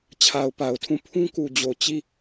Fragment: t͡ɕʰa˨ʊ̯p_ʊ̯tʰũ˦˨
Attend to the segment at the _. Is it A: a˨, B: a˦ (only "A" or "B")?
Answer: A